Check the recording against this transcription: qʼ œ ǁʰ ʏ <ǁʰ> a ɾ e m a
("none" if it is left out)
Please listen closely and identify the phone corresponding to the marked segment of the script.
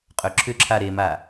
ǁʰ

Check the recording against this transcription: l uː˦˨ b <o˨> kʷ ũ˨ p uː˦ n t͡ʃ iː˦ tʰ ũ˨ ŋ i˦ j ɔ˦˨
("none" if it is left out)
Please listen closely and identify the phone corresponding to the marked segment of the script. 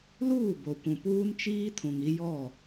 o˨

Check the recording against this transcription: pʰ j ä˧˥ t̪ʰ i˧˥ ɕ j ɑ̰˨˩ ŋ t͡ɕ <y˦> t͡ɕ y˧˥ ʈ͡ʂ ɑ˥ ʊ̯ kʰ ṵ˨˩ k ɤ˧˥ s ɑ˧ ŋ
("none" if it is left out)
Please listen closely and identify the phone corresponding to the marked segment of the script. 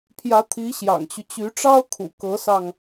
y˦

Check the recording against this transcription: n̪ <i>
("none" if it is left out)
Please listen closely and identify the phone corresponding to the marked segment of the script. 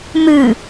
ɨ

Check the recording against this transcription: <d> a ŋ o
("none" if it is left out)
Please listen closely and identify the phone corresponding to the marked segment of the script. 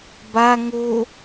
b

